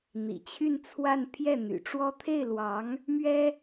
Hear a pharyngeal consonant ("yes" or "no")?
no